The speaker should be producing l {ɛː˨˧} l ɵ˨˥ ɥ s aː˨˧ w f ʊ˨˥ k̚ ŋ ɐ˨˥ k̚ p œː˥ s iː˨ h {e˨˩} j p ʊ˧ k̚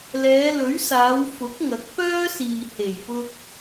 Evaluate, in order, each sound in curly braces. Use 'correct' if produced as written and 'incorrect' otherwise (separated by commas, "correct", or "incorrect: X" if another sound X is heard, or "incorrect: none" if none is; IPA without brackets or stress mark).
correct, correct